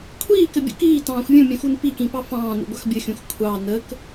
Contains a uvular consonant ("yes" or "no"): no